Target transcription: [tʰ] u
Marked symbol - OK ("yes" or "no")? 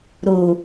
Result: no